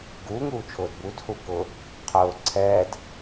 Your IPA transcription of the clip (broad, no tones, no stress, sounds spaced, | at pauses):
ɡ uː ŋ uː t͡ʃʰ ʊː d b u d h u k ʊ | qʰ ʊː ǀʰ ɛː d